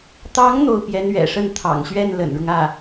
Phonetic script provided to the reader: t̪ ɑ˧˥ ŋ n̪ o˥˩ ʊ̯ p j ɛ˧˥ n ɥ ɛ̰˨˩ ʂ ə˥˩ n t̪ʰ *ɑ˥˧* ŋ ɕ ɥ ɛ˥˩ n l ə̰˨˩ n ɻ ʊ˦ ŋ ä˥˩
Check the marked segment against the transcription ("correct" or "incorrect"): incorrect